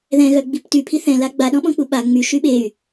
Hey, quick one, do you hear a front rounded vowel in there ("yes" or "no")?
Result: yes